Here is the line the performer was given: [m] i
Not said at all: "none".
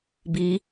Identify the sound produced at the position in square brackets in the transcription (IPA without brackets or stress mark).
b